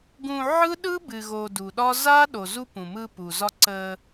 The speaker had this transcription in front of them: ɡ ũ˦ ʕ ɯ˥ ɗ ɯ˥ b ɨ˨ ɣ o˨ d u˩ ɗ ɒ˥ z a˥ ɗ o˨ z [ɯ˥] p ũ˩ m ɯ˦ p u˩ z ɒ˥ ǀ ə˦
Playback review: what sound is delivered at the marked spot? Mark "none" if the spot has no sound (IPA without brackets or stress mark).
u˥